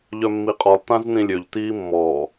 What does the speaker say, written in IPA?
ʎ œ mː i qʼ ɔ lˠ t ã z n ĩ lʲ ø ʎ t iː mː ɔː

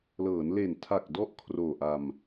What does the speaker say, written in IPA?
l ɤː˩˦ n l e˨˩ n tʰ a˨˩ k̚ d ɔ˦˥ ʔ kʰ r oː˨˩ ʔ a˧ m

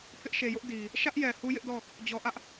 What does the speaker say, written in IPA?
pʰ ɪ˦ ʔ ʃ e˨ j ʊ˦ ʔ d i˨ | ʃ ä˦ ʔ j ɛ˨ h u˦ j ɪ˦ ʔ d ɔ˦˨ | d͡ʑ ɔ˨ ʔ ä˦ ʔ

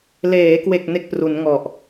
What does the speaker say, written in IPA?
l eː˩˦ k w e˨˩ k̚ n e˦˥ k̚ p r u˩˦ n ŋ ɔ˨˩ ʔ

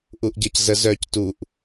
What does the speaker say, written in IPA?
ʔ u ʔ ɟ ʌ c z ə z œ c t u ʔ

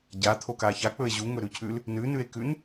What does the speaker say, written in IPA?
ɟ a t̪ʰ o k a ç a k͡p ɵ e̯ ʑ u ŋ ɵ ɾ ʉ cʰ ʉ l | n ʉ n ʉ e̯ k ʉ n

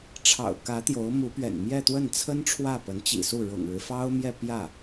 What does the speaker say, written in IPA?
ʈ͡ʂʰ ɑ̰˨˩ ʊ̯ k ä˧˥ t̪ j o˧˥ ʊ̯ m u˧˥ p ɥ ɛ̰˨˩ n m j ɛ˥˧ t̪ w ə˥˩ n t͡sʰ ə˥ n ʈ͡ʂʰ w ä˥˩ p ə˧˥ n t͡ɕ ḭ˨˩ s u˥˩ ɻ ʊ̰˨˩ ŋ ɻ ɻ̩˦ f ɑ˥ ʊ̯ m j ɛ˥˧ p j ä˥˩

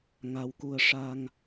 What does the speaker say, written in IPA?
ŋ a˧ w k u˧ ə̯ ʂ a˧ ŋ

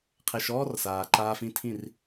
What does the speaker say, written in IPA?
qʰ e˧ ʃ ɔː˥ r s aː˩ ǃ aː˧ f ĩ˧ tʰ ĩ˥˩ r

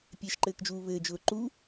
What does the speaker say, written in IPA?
pʲ e ʃ ǃ ɘː k d͡ʒ uː β ɘː d͡ʒ ʊː ǃ u

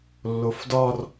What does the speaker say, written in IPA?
lː o f d ɒ r

